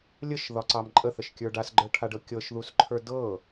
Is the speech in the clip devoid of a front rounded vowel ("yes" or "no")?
yes